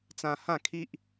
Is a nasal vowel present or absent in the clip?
present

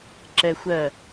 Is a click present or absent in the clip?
present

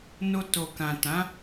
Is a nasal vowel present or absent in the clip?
present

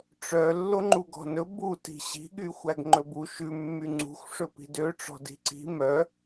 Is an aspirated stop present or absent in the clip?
absent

